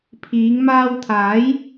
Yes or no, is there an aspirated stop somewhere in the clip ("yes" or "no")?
yes